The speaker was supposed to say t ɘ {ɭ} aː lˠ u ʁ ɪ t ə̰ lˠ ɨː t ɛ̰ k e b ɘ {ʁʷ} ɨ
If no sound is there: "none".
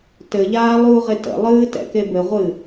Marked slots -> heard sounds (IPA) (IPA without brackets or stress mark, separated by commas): ʎ, ʁʷ